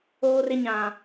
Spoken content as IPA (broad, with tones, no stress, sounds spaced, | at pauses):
oː˦ r ɪ˦ ɲ ã˦